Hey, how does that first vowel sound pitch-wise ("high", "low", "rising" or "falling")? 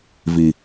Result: low